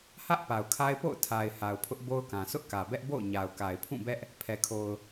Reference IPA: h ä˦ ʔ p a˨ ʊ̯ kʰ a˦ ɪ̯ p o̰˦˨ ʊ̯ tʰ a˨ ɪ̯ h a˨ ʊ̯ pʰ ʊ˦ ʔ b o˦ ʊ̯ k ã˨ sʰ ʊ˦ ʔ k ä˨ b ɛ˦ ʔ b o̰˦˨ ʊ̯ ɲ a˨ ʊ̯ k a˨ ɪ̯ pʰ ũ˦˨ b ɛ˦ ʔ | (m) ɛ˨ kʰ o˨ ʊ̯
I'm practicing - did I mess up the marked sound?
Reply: yes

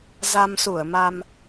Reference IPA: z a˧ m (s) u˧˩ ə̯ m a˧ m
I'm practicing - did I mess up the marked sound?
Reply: no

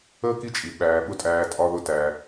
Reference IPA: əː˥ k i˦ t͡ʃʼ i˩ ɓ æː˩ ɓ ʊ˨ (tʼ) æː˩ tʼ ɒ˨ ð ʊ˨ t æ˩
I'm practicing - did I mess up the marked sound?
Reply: no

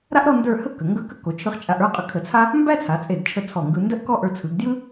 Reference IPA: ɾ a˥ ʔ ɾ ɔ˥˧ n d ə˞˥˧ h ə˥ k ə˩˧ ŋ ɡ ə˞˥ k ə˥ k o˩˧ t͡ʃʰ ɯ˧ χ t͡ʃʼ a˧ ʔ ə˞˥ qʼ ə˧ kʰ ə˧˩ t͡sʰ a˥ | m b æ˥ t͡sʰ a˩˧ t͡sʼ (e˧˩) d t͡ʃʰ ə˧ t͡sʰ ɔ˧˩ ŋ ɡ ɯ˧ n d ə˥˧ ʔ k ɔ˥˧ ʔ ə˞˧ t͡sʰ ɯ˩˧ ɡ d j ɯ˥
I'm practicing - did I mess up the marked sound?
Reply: no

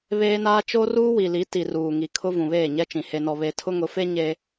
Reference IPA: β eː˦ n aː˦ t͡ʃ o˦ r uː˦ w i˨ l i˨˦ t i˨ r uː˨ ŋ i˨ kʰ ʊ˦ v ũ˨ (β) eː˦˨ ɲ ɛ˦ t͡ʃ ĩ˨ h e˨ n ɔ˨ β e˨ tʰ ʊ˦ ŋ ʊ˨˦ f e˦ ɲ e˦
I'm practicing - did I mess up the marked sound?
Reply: no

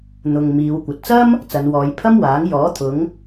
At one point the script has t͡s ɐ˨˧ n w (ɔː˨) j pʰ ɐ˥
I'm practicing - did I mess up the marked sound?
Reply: yes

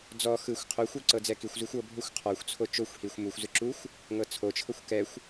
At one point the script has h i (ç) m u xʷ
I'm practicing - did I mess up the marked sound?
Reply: yes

